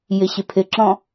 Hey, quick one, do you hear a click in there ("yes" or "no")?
yes